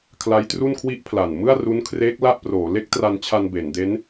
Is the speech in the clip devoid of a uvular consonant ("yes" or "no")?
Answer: yes